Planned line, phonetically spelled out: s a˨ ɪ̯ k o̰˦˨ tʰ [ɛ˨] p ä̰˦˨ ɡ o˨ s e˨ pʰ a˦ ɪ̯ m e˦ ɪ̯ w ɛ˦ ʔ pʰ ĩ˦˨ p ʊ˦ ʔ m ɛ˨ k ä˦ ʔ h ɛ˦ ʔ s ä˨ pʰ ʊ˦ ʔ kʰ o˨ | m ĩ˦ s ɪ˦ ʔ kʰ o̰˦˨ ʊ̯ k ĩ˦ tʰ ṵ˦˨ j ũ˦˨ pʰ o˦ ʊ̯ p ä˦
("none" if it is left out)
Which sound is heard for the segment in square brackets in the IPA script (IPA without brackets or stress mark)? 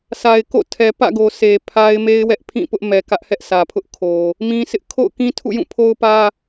ɛ˨